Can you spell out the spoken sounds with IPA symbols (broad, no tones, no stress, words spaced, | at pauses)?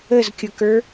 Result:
əzkʲʊkə˞